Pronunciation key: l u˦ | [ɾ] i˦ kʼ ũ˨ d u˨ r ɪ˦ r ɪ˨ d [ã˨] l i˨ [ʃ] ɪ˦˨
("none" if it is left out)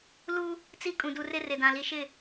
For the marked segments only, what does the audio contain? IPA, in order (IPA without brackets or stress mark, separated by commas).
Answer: t͡s, ã˨, ʃ